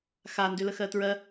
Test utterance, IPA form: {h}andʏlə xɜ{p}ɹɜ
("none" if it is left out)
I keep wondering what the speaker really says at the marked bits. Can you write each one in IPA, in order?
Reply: x, t

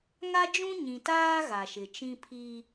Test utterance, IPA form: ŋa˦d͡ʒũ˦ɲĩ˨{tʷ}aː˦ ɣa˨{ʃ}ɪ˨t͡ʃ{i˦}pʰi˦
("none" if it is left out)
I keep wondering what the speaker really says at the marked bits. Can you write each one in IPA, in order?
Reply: t, ʃ, ĩ˦

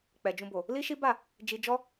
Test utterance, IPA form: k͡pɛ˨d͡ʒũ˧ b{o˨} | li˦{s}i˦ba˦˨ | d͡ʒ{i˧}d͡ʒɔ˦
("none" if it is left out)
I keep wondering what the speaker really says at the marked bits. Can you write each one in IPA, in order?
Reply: o˨, ʃ, i˧

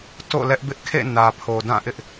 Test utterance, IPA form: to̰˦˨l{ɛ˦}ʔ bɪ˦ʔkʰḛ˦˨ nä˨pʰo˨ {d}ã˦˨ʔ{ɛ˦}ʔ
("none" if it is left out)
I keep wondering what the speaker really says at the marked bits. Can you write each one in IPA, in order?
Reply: ɛ˦, d, ɪ˦

